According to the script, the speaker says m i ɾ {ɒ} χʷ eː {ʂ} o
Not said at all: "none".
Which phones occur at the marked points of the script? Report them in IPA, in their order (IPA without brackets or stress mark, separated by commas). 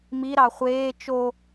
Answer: ɑ, t͡ʃ